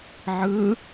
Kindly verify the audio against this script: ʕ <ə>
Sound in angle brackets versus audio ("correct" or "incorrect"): incorrect